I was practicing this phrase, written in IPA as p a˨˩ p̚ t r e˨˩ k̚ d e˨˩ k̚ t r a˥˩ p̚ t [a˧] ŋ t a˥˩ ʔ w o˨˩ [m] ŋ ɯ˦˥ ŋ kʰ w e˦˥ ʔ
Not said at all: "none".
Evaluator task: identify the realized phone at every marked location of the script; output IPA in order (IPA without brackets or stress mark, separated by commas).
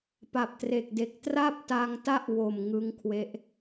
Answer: a˧, m